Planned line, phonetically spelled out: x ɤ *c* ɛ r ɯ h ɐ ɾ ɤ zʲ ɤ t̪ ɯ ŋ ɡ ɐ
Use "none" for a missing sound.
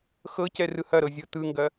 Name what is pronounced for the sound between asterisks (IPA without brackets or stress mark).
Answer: c